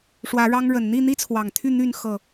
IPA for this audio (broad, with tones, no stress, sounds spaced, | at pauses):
ʂ w ä˨˦ ɻ ɑ˦ ŋ ɻ ə˨˩ n n̪ i˥˨ n̪ i˦ t͡sʰ w ɑ˨˩ ŋ t̪ʰ y˥˨ n̪ y˥˨ n x ɤ˥˨